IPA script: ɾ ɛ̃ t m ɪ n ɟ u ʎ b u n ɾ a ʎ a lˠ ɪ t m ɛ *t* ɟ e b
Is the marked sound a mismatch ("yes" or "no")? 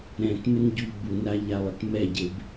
yes